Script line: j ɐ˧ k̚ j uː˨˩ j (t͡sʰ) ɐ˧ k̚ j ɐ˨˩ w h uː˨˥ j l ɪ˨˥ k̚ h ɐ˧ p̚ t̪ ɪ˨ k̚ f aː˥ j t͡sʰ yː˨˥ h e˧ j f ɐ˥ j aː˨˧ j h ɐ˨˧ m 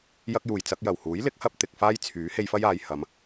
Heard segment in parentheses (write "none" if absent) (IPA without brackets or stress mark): t͡s